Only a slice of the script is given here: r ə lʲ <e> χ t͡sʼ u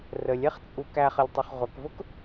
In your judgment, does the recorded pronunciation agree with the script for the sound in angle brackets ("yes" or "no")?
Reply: no